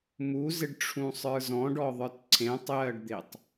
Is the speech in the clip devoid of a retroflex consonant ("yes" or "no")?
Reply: no